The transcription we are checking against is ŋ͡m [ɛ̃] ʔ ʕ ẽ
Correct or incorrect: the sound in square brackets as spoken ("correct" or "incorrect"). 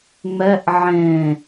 incorrect